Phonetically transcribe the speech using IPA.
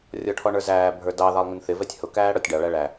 rʲ ɔ ʈʰ ɔ ɳ ə˞ z æː bʱ ə˞ d ɑ ð ɑ lˠ ŋ ɪ n θ ɪ v ɛ tʲ h ʊ k æː ɽ ɔ tʲ ɖ ɑ ɭ æ ɭ æ

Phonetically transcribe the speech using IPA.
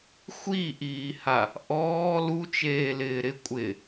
xʷ i ʔ iː h a | ʔ ɔː l u t͡ʃ eː l ɪː ɾ ɪ kʷʼ ɪ

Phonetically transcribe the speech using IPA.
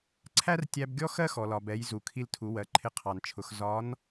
ǀʰ æ˥ r tʲ æ˧ b ɡʲ ɔ˥ x ɜ˥ x ɔ˩ l ɒ˩ b ɛ˩˧ j z u˩ kʰ i˧ l tʰ u˩˧ w ɜ˩˧ ǃʰ ɪ˧ qʰ ɑ˩ n t͡ʃʰ ʊ˩˧ x z ɒ˧˥ n

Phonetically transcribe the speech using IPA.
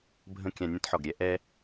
bʱ ə̃˦ kʲ ã˧ nʲ ə̃˦ t ħ ɔ˨ ɡ ɾʲ ɛ˦ ʔ ɛ˦

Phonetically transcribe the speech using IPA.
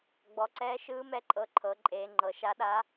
ɡ͡b ɔ˩˧ ǀ ɛː˧˥ ʃ ɯː˧˥ m ɛ˧˥ ǃʼ ɤ˧˥ ǃʰ ɤ˩˧ ǃʼ eː˩˧ ŋ͡ǃ ɤ˩˧ ʃ a˧˥ ɗ a˧˥

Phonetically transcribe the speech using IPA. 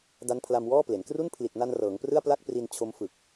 d a˦˥ n pʰ l a˧ m w ɔː˥˩ p l e˩˦ n k r u˥˩ n pʰ l i˨˩ t̚ n a˧ n r ɤː˩˦ ŋ p r ɯ˥˩ a̯ p l a˥˩ k̚ p r i˧ n t͡ɕʰ o˦˥ m f ɯ˨˩ k̚

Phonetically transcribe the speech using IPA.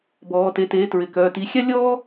b ɔː˩˧ t e˩˥ t eː˩˥ t ɹ ɪ˩˧ k œː˩˧˩ t iː˩˧ xʲ a˥ lʲ ɔː˥

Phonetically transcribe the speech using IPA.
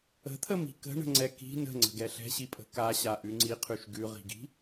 ə̤ t̪ʰ ə m i̤ k ə̤ ɳ ə̤ ŋ͡ǀ ɛ k i̤ n ə̤ ŋ͡ǀ ə̤ ɡ ɛ ɬ ɛ̤ ɕ i pʼ ə̤ k a ɕ a ʔ ʉ ŋ͡ǀ i qʰ ʉ ʃ ɡ ʉ ʁ i̤ ɡ i̤

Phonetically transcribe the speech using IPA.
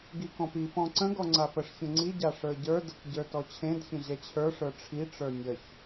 ɡ i k ɔ̃ p i p ɔ̃ ǀ ə̃ ɡ ɔ ŋ͡ǀ a p ə ʂ ç ə̃ ŋ͡ǀ i ɟ a ʂ ə˞ ɟ ə˞ d ə k ɟ ə˞ t ɔ t͡ɕʰ ẽ d ç ə̃ ʑ ɛ t͡ɕʰ ə˞ ʂ ə˞ ʈ͡ʂʰ i ʈ͡ʂ ə˞ nʲ ə ç

